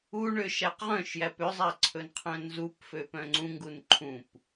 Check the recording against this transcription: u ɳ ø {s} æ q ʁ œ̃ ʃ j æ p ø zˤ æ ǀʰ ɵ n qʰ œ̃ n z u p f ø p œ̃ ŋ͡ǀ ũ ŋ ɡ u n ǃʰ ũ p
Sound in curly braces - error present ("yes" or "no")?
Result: yes